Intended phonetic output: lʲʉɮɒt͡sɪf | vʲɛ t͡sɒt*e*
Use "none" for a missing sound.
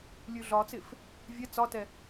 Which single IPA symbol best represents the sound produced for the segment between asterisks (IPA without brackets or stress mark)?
ɛ